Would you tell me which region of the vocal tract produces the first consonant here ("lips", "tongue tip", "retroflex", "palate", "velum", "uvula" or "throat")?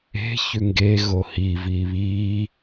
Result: palate